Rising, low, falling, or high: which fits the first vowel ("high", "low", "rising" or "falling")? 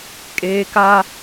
high